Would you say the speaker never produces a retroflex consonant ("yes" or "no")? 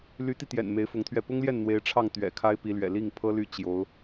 no